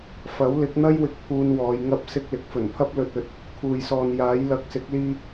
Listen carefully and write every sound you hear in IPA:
fɐ˨˥wlɪ˨˥k̚n̪ɐ˥jwɪ˨k̚ pʰuː˧nwɔː˨˧j ŋɐ˧p̚sɪ˧k̚ lɪ˨˥k̚fɵ˨˩npʰɐ˥p̚ lɵ˨t̚ɵ˨t̚ | kʰuː˨jsɔː˨njaː˨˥j lɐ˨k̚sɪ˨˥k̚liː˧

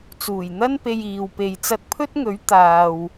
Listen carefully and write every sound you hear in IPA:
t͡suː˨˩jn̪ɐ˥npe˧j iː˨wpe˨˧j t͡sɐ˧t̚pʰɵ˥t̚ŋɵ˨˥ɥ t̪aː˨w

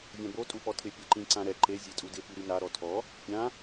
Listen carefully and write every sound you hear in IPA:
vʲãbo tʼupɔtʰɪ pʲɛǃĩ ǀãɾɛ ǃe zʲetʼudɪ piɾina ɾɔtʰɔ | pʲã

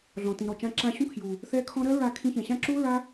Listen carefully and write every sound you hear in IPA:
ɮɔ̃˨tĩ˨ɾɔ˨t͡ʃã˧ ǁã˧ɕũ˦kʰju˨ | θɛ˦kʰɔ̃˦ ɾɜ˦ɹa˧ kʰĩ˧çɛ̃˨ɕã˦ ǁu˦ ɹa˦

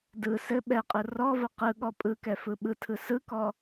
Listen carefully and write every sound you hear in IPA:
dɯ sɘ ɓɛqʼɯ rɔvə qɯɠɔ pʼɯkɛfɯ ɓɯtʰɯ sɯkɔ

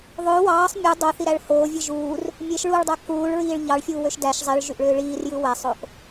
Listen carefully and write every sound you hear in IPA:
ðˤø wɑːsˤ mʲu dˤoθiɾæɭ hoːvʲɯ ʒuːr | mʲeʃɭuːɭdˤæ kuːɭɹiːɭ ʎɑɭfʲuːwøʃ dæʃ zˤiɭʒyʔɭøː ɭiːrjɯ wæsˤoʔ

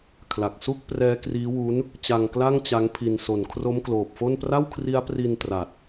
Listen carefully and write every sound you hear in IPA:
kʰla˨˩k̚su˥˩k̚prɛː˦˥ kriː˦˥wuː˦˥n | t͡ɕa˧ŋkla˥˩ŋ t͡ɕa˦˥ŋpʰi˧n so˨˩nkʰro˦˥mkloː˨˩p̚fo˥˩n pra˥˩wkʰri˦˥a̯pri˧n tra˨˩t̚

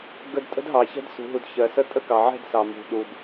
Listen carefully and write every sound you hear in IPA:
ɡə˧dtʼə̤˦dɦɑ˨ çɛ̤˦dsṳ˨ɦu˨d çɜ˨sə˦ tʼə˦kɑ˨ʕɛ̤˦˨d sɑ˨mṳ˨ɗu˨d

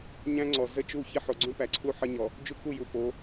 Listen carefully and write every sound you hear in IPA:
ɲæ̃˦ŋ͡ǀɔ˨ zə˦t͡ʃu˦˨ çi˦ħo˨ɡ͡ǀũ˦ pæ˨ǀʰu˦ ħə˦ɲɔ˨ | d͡ʒu˦ku˦˨ju˨po˨˦

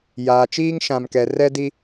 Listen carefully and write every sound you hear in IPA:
jaː˨t͡ʃiː˦ŋ ʃã˨mkɛ˨rɛ˦di˦

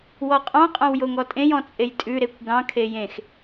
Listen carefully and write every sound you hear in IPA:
wɔqʼɑ̃ qʼɑ̃wjoŋɔtʼẽj ɔ̃t͡sʼejtʼʉ ɾekʷɡɑ̃ kʰejẽx

